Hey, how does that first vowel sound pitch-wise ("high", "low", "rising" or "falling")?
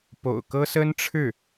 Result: low